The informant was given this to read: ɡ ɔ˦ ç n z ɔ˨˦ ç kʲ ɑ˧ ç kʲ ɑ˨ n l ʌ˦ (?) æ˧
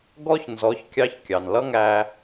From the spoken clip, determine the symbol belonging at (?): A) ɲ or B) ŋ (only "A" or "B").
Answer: B